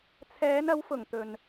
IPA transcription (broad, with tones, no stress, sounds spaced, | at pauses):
t͡sʰ ɛː˨˧ n ɐ˨˧ w f ʊ˨˩ ŋ t̪ ɵ˨ n